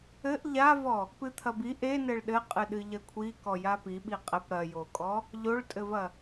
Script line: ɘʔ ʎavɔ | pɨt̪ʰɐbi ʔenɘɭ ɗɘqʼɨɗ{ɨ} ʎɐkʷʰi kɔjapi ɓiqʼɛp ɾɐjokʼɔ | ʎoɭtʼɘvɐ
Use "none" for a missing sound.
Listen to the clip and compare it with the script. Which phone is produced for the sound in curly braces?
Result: ɨ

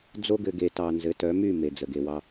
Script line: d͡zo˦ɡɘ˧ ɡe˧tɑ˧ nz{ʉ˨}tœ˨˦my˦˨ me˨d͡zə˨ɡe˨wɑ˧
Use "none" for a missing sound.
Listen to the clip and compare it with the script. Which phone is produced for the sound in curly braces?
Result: ɘ˨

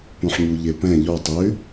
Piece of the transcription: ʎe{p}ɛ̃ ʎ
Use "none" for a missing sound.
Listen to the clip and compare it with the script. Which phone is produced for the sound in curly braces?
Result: p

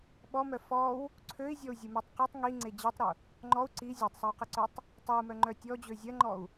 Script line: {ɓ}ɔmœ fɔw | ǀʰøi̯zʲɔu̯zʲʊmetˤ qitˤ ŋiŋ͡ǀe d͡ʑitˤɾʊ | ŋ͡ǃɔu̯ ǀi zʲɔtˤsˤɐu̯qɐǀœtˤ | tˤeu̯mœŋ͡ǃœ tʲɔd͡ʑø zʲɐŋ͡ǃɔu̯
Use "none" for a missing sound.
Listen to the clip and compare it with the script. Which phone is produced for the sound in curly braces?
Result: ɓ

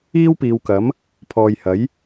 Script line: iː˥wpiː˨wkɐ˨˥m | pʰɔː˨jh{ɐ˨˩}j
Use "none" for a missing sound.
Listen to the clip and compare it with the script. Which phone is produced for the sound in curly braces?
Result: ɐ˨˥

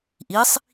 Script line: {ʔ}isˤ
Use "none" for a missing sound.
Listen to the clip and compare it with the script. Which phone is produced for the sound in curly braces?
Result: ʔ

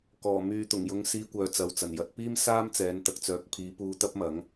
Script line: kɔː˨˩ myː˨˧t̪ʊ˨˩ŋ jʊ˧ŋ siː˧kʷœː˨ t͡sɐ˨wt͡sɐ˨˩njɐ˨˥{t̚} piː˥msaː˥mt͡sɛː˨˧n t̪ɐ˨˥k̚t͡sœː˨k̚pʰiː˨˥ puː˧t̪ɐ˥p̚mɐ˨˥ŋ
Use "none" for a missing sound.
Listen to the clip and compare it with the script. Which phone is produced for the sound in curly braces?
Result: t̚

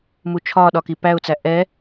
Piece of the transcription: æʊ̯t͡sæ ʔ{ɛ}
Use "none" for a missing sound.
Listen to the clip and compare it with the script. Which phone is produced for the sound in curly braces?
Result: ɛ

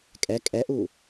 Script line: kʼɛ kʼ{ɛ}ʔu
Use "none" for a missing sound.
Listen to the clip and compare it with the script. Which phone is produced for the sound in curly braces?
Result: ɛ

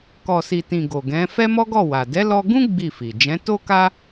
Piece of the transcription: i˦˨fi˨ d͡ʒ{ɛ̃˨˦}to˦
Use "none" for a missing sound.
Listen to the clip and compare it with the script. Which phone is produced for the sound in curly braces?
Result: ɛ̃˨˦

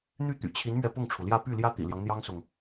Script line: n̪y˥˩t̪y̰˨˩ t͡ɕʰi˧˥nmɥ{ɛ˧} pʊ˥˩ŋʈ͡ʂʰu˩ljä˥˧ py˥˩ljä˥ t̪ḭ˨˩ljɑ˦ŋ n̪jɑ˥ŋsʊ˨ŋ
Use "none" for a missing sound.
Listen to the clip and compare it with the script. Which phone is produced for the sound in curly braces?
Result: ɛ˧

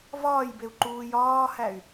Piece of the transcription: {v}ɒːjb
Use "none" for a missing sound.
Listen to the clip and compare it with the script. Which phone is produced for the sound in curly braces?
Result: v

